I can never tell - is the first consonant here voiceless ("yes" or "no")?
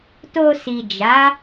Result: yes